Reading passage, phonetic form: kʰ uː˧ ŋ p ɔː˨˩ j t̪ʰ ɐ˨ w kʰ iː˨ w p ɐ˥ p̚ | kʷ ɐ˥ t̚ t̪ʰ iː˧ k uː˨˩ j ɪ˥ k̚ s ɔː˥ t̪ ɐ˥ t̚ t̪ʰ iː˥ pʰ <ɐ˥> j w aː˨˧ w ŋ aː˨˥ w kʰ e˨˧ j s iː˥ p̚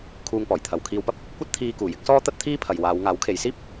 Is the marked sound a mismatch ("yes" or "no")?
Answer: yes